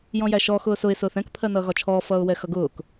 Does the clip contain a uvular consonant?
no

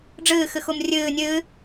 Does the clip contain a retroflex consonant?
yes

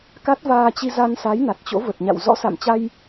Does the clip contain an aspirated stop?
no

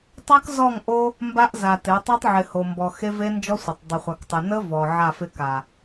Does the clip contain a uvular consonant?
yes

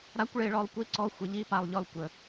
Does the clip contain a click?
yes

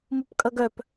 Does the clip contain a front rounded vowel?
yes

